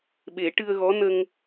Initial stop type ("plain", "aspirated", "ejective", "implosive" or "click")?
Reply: implosive